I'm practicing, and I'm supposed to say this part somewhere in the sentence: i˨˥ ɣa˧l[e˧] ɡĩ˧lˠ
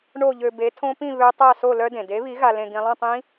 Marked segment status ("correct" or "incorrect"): incorrect